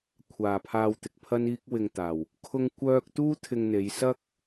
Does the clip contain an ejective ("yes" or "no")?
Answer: no